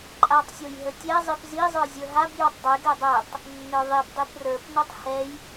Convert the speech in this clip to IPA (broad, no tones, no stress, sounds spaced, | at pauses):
ǃʼ a tˤ sʲ o j ɦ ə tʲ ɛ zˤ i p z i zˤ ə˞ zʲ ə˞ ɦ a b j o tˤ dˤ e ɡ ɛ dˤ ɛ tˤ | nː ə˞ ðˤ i b dˤ i p r ə˞ p n o tˤ h ɛ j